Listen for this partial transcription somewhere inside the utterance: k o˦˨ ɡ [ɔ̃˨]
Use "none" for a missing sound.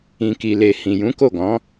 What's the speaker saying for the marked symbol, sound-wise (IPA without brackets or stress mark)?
ɔ̃˨˦